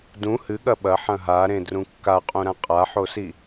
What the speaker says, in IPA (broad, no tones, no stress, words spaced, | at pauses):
dũ hɨɠɐ ɓɐħɐ̃ ɦaɾẽdrũ kːaqʼũɾã qʼaħosi